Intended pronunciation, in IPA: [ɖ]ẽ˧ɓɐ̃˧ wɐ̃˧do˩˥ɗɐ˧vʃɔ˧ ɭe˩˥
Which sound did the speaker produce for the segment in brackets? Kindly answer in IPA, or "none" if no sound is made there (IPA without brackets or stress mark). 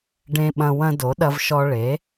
ɖ